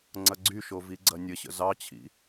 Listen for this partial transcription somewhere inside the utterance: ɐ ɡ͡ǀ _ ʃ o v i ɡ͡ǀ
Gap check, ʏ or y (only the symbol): y